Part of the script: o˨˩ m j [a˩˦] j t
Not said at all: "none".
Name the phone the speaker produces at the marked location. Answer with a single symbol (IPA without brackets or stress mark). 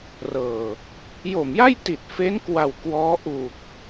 a˥˩